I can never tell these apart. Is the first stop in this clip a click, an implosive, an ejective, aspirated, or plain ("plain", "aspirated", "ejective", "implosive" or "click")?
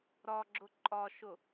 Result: click